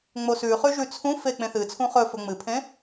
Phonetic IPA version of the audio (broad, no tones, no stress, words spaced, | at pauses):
ŋ͡mosʉχʉ ʒʉt͡sʰũfe k͡pẽθɨt͡sʰũ χɵ fɵŋ͡mɨpʰẽ